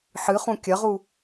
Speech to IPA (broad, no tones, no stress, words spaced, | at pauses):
ħɨχũ kʲɐʁu